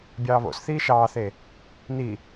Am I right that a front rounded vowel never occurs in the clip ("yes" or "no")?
yes